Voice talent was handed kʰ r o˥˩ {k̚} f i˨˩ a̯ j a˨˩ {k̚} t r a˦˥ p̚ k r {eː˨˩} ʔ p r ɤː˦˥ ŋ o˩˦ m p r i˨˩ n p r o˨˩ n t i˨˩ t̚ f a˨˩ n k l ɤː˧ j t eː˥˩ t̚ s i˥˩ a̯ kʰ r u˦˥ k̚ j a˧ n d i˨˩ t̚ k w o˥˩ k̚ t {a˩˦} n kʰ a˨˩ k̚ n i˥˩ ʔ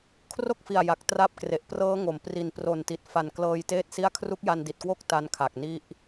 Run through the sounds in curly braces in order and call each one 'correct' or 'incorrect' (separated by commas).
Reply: correct, correct, incorrect, incorrect